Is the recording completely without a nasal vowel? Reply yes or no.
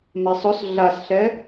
yes